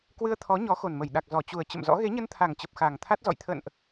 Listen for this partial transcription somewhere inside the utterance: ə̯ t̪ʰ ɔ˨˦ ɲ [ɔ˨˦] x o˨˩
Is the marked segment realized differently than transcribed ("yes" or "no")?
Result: no